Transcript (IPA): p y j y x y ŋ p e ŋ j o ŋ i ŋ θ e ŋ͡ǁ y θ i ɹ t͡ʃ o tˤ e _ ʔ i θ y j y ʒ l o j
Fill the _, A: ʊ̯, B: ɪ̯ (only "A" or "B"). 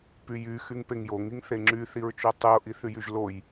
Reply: A